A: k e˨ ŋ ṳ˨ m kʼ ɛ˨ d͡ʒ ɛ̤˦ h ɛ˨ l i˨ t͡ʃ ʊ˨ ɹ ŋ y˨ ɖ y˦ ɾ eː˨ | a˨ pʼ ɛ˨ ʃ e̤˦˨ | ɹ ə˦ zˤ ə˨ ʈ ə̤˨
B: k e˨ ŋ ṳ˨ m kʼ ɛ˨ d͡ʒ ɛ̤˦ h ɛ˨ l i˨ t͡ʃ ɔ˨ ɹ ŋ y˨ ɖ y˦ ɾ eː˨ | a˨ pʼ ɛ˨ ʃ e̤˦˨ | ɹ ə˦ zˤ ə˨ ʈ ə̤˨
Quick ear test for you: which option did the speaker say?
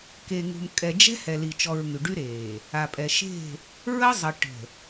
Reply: B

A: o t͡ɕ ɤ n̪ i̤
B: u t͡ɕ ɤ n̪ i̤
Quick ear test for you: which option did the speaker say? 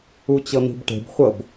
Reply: B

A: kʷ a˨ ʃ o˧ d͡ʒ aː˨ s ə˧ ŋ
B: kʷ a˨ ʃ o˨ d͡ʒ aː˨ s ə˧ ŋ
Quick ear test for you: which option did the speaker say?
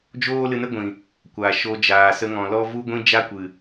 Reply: A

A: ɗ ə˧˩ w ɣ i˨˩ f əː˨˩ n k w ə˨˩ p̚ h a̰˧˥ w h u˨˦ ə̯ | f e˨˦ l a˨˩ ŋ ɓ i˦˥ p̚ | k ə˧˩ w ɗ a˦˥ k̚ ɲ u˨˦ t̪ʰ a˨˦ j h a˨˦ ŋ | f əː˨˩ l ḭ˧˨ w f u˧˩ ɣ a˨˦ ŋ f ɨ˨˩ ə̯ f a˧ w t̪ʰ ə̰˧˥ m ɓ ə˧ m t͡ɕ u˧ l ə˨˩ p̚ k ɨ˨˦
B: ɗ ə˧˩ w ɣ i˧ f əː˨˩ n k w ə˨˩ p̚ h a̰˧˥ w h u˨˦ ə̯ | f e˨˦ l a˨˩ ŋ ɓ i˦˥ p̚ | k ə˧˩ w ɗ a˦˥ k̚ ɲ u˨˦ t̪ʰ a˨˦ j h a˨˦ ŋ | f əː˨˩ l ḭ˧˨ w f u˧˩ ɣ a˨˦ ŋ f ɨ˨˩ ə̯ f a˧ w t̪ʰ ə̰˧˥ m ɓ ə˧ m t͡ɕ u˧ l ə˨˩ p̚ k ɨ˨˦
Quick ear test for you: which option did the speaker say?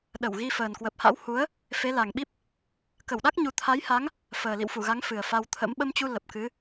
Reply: B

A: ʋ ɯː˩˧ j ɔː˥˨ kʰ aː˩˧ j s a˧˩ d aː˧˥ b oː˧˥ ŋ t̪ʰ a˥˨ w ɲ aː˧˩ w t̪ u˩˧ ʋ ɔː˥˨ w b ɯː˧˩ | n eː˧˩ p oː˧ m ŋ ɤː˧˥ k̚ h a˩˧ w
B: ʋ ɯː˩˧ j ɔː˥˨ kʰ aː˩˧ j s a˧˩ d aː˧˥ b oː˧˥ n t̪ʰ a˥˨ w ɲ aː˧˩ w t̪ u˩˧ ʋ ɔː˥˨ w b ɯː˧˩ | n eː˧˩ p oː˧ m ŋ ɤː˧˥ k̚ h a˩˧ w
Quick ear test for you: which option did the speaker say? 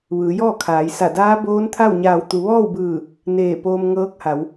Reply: B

